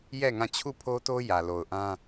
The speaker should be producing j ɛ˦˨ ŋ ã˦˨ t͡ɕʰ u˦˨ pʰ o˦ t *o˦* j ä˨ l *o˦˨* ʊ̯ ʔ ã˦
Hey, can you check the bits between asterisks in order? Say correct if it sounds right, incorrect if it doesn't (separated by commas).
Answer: correct, incorrect